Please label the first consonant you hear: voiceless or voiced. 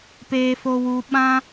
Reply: voiceless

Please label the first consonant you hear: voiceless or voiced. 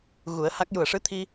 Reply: voiced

